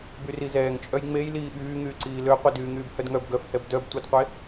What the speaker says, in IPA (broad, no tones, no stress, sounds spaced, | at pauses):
b y r i z ɛː ŋ t͡ʃʼ œ j ŋ͡m e j l iː ɓ yː ŋ yː ǀ iː l ø qʷ i d yː ŋ yː b h œ d ŋ œ b ɡ œ f h ɛ b d œ b tʷ œ d qʷ e